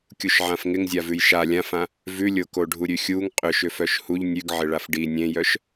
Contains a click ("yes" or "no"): no